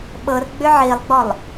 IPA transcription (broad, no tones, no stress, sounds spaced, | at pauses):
ɓ ɤ r ɡ͡b ʏ ʕ i lˠ ɡ͡b ɔ lˠ